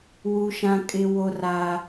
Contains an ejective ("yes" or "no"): yes